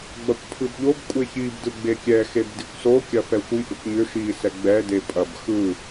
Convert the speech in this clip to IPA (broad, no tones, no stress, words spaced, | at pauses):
ɡ͡bɐkʷpʰɯbʎob kʷʼeçib dɯɡ͡bekʲɛ xebdikʷso kʲɐfɛxʷi ʔʏkʷɲʏ ʃi sɛɡ͡bɛ depʼɐb xɯ